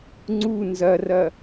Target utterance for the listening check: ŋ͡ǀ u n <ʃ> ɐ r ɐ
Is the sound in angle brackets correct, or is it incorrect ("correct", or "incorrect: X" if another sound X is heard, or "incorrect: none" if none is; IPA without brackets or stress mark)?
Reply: incorrect: z